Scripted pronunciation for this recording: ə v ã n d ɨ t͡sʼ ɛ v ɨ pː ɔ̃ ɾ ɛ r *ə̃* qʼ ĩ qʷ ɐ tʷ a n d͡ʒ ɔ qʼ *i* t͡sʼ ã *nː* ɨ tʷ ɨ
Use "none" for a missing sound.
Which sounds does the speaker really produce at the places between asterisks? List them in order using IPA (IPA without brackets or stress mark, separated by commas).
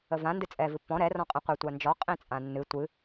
ɔ̃, ĩ, nː